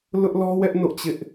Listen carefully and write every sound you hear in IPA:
l ʊ˦ ʔ l ɔ˦ w ɛ˦ ʔ n o̰˦˨ t͡ɕ ɪ˦ ʔ

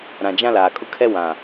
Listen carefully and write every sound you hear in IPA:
ɾ ã˨ d͡ʒ ã˦ l aː˨ kʼ ʊ˦ kʰ ɛ˦ w ã˨

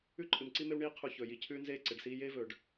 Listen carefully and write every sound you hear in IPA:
ʉ˦ ǃʼ ɨ˨ m ǀ i˦ m e˦ w ɳ iː˦ qʰ u˨ ç ɵː˨ j i˨ cʰ ʉː˦ n z eː˦ ǀ e˨ ɖ s iː˦ j eː˦ v ɵː˨ ɖ

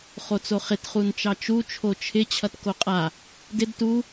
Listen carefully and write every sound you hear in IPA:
χ o t͡s o χ ɪ t χ u n t͡ʃ ɑ t͡ʃ u t͡ʃʰ o t͡ʃʰ ɪ t͡ɕʰ ʌ t k o qʼ a | d ɪ d t u

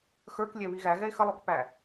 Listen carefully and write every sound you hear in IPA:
x ə˞ k lʲ ɛ β i ɣ æ ɣ ɛ e̯ x ə lˠ o k p æ

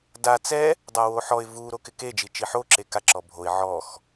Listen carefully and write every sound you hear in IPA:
d a t͡s ɛ | dˤ a w o ħ ɔ ɪ̯ v u ɾ o k ɪ k e d͡ʒ i t͡ʃ i ħ o ǁ e k a ǁ ɔ bʱ o ɪ̯ ʕ ɔ x

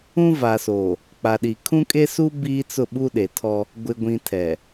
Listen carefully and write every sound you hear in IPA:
ũ˦ v a˨ s oː˨ | k͡p a˨ ɗ i˨ kʰ ũ˦ kʼ e˦ s u˦ b iː˦ t͡s ʊ˦˨ ɓ u˦ ɗ e˨ tʰ ɔ˦ | ɡʷ ɪ˨ ɡʷ ĩ˨ tʰ ɛ˨

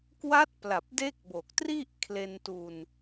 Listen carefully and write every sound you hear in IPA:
k w a˦˥ t̚ p l a˨˩ p̚ d e˦˥ k̚ b o˨˩ k̚ t r i˥˩ ʔ kʰ l e˧ n t u˧ n

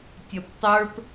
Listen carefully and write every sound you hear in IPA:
tʲ ʌ p tˤ ə˞ p

